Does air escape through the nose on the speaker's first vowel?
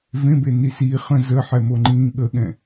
yes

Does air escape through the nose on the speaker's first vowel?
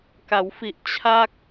no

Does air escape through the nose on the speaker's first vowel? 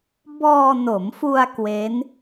no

